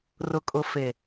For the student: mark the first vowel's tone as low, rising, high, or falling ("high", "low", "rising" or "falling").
low